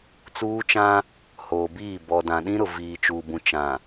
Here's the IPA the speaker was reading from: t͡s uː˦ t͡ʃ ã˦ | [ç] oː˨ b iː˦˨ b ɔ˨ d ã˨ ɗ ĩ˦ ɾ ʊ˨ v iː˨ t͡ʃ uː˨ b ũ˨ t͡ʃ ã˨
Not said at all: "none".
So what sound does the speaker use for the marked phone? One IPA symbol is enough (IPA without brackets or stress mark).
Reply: h